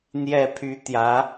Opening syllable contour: falling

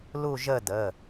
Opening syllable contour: falling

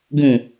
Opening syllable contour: low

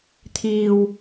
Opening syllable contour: low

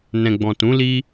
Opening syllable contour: low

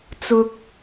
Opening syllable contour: high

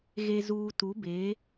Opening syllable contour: low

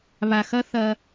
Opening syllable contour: low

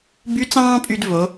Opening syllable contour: rising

